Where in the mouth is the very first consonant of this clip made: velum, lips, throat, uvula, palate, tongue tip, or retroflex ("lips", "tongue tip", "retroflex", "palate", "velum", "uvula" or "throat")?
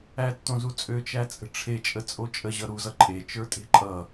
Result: tongue tip